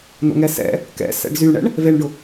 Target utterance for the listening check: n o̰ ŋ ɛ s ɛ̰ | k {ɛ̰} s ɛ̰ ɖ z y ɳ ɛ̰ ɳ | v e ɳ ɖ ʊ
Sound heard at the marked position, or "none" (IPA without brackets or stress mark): ɛ̰